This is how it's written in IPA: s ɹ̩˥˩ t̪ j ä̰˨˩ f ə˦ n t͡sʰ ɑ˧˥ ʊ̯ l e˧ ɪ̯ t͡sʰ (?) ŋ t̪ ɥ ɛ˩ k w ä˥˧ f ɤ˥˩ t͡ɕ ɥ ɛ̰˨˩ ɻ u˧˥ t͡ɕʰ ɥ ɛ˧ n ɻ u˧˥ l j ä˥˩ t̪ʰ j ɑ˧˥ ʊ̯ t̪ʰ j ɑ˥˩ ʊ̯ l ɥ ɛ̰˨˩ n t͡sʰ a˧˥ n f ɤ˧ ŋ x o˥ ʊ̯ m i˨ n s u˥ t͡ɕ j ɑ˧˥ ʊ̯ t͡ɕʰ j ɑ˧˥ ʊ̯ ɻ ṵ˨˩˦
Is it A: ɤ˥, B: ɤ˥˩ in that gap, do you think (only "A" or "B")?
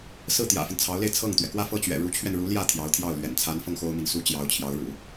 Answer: B